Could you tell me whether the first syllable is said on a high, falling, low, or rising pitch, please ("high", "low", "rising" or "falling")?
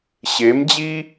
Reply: rising